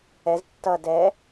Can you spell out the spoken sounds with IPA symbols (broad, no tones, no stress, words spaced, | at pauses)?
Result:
ɛz tːʌ dɛ